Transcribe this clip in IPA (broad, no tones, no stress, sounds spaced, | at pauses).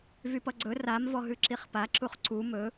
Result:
v y p ʌ ɡ͡ǀ ɵ r a m v ɔ ɦ ʉ ǁ i χ p a ǁ u χ ǀ u m ɵ